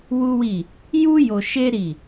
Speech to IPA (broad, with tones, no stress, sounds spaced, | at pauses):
w u˦ w i˦˨ | j u˦ j o˧ ʃ e˦ ɾ i˦˨